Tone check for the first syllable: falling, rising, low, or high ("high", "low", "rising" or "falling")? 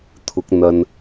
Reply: rising